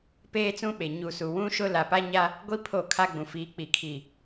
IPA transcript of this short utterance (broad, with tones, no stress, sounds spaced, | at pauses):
p eː˦ t͡s ũ˦ ɓ e˨ ɲ u˨ s u˨ w ũ˦ ʃ ʊ˦ l a˨ p a˦ ɲ a˦ | ɡʷ i˦ pʰ o˦˨ kʰ a˦ ɡ͡b ũ˨ f iː˨˦ k͡p i˨ kʰ i˨